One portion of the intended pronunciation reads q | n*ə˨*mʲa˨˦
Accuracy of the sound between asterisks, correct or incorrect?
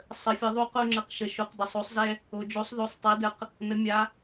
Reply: incorrect: ə˨˦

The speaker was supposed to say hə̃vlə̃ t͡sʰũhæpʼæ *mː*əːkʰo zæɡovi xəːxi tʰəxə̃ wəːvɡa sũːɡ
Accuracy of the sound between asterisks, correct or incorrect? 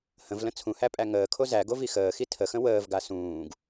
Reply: incorrect: ŋ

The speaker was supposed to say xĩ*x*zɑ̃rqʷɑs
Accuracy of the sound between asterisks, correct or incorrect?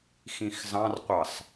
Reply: correct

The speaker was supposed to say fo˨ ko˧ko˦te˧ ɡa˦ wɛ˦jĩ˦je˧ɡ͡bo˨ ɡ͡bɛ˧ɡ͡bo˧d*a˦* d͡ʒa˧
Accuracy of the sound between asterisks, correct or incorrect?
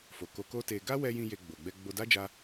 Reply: correct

